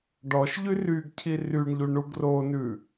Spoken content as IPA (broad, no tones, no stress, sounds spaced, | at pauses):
ɖ ɔ ʃ ʎ y r y ɡ cʰ i r y ɳ ʎ u ɳ u ɡ r o n ʉ